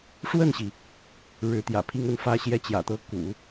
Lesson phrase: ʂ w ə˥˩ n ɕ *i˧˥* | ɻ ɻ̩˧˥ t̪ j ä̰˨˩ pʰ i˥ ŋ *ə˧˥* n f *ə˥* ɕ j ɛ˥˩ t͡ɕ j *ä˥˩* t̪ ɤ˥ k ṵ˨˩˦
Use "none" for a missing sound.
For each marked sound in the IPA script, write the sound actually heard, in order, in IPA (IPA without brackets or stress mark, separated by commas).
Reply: i˩, ə˧˥, ä˥, ä̰˨˩